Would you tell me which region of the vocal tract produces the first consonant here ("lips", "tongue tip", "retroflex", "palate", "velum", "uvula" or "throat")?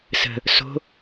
tongue tip